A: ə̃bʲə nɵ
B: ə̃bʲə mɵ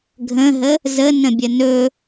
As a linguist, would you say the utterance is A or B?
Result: A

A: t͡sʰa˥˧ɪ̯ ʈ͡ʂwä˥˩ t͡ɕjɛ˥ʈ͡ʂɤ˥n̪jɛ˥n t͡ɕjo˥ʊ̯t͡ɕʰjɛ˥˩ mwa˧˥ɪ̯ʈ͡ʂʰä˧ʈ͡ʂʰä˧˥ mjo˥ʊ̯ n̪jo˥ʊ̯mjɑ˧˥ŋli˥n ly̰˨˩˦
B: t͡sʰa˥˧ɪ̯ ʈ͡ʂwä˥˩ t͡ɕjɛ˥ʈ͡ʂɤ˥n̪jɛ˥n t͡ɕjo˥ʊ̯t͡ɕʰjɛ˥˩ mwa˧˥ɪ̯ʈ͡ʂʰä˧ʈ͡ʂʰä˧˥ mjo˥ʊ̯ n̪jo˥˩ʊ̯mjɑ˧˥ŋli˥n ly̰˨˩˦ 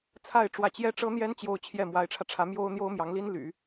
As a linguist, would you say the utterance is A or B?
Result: A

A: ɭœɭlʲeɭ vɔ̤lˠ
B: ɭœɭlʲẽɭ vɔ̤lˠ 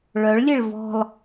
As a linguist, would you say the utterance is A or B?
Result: A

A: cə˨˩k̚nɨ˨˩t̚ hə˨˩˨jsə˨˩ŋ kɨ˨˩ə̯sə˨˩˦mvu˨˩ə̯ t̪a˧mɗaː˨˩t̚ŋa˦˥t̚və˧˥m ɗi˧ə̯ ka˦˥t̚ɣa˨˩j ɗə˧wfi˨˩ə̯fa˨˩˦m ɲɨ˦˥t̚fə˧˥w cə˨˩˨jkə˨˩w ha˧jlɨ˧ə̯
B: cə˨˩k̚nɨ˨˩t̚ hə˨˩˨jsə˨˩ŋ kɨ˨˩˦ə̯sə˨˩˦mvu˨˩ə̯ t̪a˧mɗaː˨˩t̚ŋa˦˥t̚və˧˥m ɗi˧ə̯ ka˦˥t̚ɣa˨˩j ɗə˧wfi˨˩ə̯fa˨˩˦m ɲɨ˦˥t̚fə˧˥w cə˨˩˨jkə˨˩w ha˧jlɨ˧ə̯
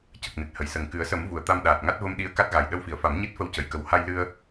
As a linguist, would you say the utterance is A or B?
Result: B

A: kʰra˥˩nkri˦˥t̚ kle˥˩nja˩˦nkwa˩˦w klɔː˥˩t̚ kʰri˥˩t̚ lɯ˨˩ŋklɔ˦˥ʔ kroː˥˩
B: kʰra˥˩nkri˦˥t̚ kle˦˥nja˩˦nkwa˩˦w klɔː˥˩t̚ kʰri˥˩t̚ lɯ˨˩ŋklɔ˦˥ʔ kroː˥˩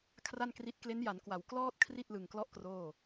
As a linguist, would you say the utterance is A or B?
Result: B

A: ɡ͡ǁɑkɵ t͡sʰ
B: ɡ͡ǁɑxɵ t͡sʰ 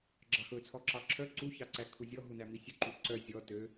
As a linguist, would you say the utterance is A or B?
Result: B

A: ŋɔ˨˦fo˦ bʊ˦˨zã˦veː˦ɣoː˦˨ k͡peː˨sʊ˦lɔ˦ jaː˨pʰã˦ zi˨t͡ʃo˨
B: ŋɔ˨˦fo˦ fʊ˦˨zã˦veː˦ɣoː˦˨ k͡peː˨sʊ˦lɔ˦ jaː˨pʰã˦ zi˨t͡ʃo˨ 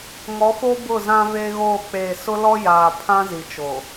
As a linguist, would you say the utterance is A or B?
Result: A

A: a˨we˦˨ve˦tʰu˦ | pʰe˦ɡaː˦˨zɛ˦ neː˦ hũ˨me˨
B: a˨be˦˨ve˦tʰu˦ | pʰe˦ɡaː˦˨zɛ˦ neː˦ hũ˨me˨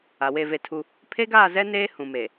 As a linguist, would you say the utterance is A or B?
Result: A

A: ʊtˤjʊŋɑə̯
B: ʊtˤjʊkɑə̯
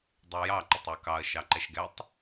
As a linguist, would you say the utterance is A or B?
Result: B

